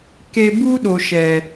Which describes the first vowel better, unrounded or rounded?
unrounded